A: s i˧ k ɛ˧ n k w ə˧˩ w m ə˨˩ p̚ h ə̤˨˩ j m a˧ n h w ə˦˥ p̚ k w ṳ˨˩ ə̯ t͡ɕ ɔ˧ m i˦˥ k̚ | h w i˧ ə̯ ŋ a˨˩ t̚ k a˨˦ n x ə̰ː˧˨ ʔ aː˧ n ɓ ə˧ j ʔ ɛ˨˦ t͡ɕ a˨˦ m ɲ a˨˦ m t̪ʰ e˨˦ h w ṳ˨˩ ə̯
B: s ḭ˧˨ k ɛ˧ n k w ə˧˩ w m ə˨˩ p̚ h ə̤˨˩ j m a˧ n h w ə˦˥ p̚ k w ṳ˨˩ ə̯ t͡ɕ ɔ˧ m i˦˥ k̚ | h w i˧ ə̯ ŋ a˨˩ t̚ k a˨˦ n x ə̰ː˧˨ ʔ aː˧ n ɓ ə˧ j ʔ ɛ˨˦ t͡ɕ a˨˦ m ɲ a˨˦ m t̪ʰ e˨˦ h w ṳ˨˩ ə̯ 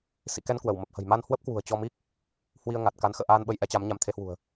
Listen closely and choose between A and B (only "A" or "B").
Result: B